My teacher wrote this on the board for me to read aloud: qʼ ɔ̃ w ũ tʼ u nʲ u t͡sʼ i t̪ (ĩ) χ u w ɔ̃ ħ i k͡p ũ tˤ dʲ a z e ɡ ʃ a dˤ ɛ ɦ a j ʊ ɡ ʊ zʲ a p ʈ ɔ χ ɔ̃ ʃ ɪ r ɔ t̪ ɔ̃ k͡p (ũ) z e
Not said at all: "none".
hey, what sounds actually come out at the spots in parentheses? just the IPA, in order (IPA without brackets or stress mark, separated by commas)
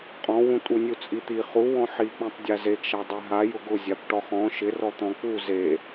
i, u